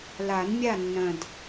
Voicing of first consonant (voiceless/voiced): voiced